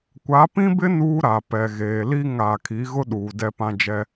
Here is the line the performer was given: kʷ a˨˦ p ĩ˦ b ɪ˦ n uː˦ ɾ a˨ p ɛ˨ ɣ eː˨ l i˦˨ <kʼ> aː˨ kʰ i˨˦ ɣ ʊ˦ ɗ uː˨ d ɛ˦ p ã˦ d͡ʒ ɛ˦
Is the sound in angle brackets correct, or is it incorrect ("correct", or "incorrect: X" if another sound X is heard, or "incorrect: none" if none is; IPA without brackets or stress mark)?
incorrect: ŋ